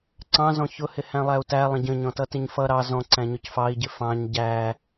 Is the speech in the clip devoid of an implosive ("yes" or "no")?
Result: yes